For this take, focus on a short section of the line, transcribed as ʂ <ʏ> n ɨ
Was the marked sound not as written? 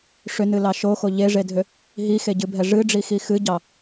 no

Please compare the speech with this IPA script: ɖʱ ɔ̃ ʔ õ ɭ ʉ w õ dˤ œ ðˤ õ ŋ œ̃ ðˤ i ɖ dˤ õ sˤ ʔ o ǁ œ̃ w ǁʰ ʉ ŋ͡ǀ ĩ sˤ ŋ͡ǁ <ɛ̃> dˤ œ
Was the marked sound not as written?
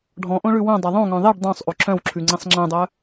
no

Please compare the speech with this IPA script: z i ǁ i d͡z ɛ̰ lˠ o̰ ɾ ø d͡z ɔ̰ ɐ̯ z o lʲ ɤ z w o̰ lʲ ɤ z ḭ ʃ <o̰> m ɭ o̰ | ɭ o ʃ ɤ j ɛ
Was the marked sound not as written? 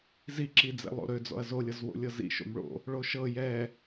no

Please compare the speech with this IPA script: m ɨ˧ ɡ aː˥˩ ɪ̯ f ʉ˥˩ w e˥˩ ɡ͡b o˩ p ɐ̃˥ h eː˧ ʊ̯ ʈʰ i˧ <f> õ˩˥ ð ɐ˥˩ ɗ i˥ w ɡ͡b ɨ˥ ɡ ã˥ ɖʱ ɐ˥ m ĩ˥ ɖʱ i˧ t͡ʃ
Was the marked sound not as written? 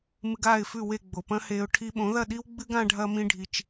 yes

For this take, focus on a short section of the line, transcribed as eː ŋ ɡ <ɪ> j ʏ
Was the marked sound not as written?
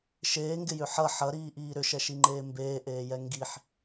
no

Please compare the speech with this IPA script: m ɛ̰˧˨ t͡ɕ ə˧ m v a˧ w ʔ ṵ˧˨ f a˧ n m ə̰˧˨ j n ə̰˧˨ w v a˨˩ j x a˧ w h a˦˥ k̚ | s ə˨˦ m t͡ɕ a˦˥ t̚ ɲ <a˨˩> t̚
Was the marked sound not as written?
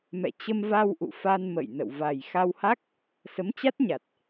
no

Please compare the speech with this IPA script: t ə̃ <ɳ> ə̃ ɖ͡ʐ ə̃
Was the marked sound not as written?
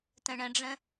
no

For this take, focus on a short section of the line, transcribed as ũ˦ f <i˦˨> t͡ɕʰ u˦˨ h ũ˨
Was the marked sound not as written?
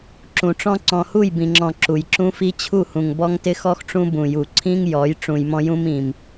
yes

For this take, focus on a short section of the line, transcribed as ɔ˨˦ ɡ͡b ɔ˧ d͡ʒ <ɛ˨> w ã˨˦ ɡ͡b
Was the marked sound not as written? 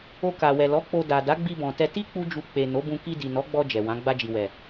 no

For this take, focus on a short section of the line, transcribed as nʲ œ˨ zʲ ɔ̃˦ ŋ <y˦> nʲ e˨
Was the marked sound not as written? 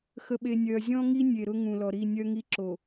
yes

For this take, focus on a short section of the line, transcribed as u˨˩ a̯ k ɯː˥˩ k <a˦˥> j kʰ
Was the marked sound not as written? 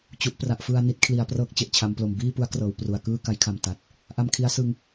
no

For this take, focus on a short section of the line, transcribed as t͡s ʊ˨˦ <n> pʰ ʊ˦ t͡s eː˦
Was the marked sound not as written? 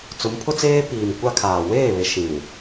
yes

